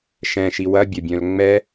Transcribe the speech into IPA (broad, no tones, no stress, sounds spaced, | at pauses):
ʃ ɛ̃ ʃ i w ɐ bʲ ɐ bʲ œ̃ l ŋ͡m ɛ